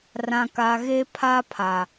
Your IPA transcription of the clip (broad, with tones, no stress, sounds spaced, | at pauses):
r ã˨ k a˨ ɣ e˦ pʰ a˦ pʰ a˨